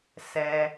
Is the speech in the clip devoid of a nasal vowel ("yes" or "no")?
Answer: yes